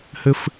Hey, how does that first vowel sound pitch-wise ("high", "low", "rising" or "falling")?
high